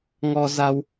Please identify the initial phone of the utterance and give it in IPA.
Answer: ŋ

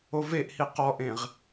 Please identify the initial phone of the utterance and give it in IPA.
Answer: o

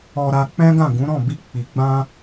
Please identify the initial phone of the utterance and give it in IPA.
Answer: ɔ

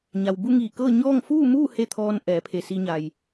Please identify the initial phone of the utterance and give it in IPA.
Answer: ɲ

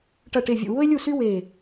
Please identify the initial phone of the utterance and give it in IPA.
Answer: ʈ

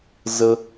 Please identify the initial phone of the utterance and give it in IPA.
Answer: z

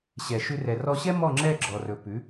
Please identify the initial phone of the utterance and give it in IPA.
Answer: ɕ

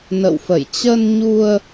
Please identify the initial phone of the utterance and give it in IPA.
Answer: n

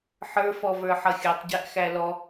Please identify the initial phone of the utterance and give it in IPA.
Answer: ħ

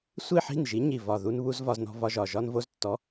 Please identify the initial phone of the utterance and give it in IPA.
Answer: sʷ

